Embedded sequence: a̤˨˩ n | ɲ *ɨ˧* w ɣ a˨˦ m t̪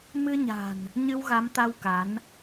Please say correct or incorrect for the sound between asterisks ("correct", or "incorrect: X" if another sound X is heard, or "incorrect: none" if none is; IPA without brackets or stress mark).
correct